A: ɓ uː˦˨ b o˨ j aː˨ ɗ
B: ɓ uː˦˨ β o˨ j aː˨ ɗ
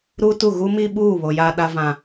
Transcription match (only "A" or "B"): B